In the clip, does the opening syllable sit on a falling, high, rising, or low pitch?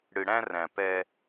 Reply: low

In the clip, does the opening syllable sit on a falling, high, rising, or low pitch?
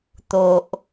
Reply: low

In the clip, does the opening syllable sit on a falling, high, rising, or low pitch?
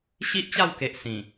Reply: high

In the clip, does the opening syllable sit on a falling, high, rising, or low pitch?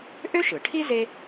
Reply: high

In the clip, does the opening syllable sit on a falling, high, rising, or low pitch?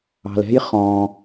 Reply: low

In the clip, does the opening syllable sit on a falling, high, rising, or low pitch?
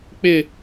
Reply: falling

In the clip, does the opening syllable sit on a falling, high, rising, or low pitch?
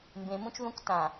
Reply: low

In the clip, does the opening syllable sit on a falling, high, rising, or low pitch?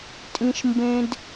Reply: high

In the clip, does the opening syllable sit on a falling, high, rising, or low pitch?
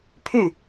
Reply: falling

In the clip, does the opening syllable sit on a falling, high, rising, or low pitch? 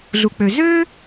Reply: low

